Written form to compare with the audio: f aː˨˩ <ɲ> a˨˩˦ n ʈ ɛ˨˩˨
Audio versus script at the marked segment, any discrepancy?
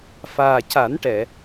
yes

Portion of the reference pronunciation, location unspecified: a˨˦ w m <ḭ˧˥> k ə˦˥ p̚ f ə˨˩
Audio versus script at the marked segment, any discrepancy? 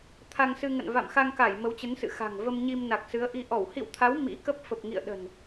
no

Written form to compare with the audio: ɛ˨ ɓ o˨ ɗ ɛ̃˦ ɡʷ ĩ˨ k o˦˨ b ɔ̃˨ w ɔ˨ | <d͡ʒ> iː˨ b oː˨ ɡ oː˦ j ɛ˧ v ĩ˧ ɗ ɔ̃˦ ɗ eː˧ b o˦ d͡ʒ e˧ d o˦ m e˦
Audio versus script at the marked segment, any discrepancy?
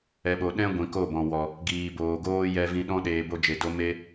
yes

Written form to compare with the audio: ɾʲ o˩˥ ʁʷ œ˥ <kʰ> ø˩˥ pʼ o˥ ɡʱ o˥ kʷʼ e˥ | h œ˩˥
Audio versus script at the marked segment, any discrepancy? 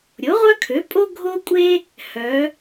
no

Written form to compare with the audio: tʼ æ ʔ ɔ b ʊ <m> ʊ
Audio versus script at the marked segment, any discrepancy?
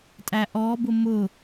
no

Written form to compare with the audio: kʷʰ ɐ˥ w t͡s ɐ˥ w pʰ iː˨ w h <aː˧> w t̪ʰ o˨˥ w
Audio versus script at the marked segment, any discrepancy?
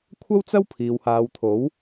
yes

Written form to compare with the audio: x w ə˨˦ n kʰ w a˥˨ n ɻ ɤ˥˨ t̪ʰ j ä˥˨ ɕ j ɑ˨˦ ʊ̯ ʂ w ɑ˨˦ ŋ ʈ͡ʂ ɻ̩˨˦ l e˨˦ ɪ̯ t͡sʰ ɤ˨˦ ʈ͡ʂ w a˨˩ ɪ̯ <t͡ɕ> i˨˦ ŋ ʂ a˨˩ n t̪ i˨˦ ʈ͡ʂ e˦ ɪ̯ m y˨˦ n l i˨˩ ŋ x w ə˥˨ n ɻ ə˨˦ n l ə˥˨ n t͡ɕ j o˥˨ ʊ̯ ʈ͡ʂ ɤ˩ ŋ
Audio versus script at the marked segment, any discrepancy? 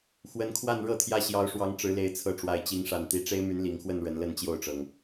no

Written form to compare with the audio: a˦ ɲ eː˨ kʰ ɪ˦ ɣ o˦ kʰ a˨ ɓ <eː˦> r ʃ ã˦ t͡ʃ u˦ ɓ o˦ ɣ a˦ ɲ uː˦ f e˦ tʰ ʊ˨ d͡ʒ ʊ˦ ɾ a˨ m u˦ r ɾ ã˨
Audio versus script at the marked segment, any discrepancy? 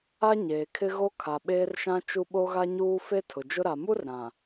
no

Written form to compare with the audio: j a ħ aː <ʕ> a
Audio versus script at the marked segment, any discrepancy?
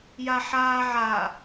no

